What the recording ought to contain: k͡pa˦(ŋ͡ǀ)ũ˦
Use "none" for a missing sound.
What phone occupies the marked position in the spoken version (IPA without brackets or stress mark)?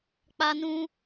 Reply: n